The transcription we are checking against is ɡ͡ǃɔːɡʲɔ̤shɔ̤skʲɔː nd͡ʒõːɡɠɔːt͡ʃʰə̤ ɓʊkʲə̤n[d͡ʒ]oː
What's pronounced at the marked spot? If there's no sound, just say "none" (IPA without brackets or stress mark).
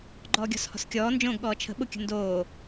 d